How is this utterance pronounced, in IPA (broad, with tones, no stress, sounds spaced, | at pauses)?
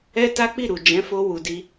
ɛ˦ t a˦ k͡p i˦˨ ɾ u˨ d͡ʒ ɛ̃˨˦ f o˧ w u˨ d i˧